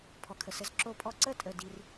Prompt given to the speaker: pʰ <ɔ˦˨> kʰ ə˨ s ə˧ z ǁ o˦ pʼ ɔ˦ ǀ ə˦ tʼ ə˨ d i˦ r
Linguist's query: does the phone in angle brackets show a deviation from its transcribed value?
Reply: yes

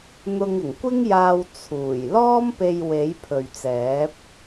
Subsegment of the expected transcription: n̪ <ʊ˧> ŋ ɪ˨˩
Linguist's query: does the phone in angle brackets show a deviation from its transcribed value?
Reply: no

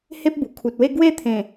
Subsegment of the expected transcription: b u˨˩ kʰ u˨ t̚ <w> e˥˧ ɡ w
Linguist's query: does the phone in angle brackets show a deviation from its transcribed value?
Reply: no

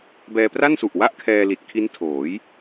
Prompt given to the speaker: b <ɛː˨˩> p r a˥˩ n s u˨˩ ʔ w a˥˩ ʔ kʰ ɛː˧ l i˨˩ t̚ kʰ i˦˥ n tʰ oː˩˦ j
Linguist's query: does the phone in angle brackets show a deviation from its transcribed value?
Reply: yes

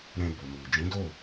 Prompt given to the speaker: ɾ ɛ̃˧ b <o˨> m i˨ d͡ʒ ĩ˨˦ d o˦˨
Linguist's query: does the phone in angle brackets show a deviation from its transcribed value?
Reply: no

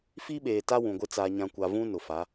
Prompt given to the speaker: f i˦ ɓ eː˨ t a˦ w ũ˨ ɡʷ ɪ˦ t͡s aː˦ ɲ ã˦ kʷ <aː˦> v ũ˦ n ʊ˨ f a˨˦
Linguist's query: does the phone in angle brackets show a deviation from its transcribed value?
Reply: yes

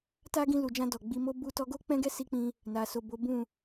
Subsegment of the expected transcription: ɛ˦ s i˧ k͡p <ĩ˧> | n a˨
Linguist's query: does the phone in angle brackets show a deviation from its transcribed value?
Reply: no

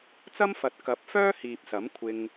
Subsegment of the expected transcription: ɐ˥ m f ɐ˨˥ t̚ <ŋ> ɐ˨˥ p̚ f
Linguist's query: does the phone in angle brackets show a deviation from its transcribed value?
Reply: yes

